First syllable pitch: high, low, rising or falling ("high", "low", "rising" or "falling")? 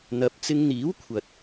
rising